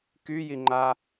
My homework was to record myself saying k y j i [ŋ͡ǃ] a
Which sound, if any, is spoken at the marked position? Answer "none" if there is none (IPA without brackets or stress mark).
ŋ͡ǃ